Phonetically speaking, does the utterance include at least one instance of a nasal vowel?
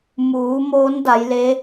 no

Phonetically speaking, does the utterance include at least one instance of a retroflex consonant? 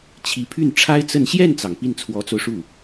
yes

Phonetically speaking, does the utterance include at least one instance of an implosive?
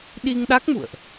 yes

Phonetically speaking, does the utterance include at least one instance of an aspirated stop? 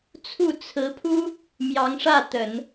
yes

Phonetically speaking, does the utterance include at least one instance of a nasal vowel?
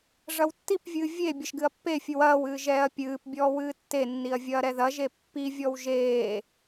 no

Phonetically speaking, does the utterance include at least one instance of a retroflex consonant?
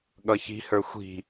no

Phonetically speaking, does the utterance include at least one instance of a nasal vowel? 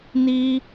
no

